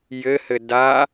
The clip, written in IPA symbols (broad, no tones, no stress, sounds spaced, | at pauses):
j ɘ h ɘ d a